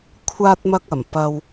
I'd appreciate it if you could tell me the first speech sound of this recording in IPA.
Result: kʷʰ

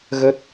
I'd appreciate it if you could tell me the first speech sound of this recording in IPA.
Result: ɣ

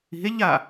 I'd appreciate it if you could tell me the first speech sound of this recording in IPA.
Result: i̤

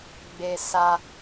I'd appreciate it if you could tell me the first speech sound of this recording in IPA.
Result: ɡ͡b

